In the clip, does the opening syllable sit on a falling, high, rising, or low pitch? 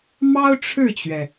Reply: high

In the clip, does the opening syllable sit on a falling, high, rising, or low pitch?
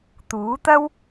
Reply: rising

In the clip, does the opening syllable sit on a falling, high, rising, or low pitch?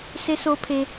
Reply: high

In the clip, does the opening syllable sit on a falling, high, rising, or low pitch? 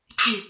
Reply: falling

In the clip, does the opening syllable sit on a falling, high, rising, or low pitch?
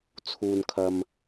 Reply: low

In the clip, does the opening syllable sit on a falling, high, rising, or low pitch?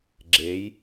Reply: rising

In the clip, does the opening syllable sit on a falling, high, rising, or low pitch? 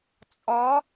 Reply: rising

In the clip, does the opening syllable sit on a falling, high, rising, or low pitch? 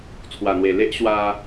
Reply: low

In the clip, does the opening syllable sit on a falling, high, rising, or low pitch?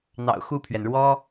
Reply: low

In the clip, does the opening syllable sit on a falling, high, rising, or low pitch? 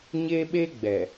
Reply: high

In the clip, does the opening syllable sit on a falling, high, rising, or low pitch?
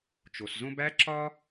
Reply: low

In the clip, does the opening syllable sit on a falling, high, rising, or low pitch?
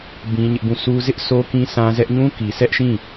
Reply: high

